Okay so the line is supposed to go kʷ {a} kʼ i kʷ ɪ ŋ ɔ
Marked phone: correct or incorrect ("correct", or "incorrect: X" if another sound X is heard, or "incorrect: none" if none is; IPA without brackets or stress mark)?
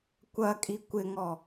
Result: incorrect: ɐ